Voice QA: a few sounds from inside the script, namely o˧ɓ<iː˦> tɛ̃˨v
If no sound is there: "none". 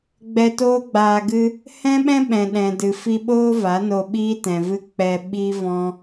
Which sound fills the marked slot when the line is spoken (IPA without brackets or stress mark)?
iː˦